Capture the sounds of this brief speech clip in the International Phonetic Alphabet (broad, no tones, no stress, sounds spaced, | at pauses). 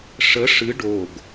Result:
ʂ ə ʂ ɨ ɖ o ɡ